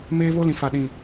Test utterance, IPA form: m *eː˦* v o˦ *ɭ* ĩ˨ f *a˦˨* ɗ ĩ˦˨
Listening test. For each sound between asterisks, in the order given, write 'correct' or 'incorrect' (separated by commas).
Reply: correct, incorrect, correct